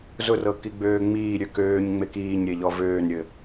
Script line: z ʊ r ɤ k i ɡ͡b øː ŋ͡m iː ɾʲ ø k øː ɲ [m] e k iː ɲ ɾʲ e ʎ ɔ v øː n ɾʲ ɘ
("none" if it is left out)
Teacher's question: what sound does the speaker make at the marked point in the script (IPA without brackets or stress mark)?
ŋ͡m